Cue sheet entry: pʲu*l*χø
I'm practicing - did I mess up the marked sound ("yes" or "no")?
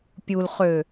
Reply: no